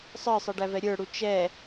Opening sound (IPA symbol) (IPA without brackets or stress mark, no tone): sˤ